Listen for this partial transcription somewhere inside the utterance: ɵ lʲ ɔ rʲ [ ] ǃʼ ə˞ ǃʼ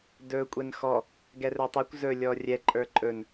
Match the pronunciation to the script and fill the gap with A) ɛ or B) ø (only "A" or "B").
A